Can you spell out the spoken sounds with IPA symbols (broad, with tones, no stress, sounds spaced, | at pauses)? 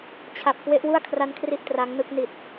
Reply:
t͡ɕʰ a˨˩ p̚ k w e˦˥ ʔ w u˥˩ a̯ kʰ r a˦˥ n kʰ r i˦˥ ʔ t r a˦˥ ŋ n ɯ˦˥ k̚ n i˨˩ t̚